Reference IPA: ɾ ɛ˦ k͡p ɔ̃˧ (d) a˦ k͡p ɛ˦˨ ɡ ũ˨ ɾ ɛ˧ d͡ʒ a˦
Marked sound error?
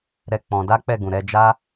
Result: no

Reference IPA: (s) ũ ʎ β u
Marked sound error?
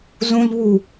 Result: yes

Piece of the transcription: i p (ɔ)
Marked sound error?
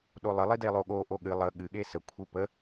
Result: yes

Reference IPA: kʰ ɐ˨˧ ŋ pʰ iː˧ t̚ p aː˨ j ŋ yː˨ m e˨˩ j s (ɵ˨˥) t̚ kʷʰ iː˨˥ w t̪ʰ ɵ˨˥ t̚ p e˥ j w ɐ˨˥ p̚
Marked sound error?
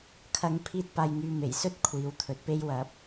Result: yes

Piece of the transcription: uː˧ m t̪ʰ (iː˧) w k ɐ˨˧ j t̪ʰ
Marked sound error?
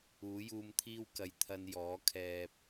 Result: yes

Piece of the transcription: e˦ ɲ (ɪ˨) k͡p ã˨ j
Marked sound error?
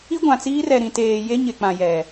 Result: no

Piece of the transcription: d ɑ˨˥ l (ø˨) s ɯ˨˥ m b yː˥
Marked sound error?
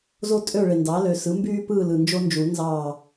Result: no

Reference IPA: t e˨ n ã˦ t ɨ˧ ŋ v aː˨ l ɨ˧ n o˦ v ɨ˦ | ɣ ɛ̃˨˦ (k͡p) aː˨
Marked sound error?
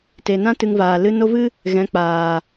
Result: no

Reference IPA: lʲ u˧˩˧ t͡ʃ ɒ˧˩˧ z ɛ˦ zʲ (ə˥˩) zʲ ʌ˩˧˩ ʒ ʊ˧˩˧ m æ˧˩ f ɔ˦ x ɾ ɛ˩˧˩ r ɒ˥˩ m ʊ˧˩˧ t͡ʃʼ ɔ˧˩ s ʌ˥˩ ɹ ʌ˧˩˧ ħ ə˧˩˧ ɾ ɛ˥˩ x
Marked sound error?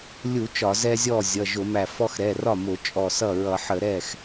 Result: yes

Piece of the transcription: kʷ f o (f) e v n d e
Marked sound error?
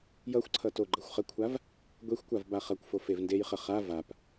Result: no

